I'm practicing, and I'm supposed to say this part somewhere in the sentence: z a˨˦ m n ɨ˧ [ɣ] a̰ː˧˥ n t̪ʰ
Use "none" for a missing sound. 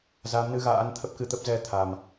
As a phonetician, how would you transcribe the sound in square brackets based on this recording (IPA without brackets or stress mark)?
ɣ